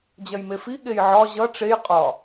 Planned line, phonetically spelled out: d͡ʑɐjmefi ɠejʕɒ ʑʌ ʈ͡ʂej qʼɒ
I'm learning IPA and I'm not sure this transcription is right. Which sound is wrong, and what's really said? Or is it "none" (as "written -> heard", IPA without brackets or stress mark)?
none